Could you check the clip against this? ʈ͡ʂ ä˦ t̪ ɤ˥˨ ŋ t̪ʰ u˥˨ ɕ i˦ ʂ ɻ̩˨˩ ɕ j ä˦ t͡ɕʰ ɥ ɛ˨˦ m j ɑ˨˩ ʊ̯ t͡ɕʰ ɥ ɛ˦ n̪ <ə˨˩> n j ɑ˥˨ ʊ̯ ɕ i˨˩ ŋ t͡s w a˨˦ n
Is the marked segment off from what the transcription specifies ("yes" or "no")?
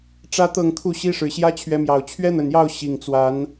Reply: no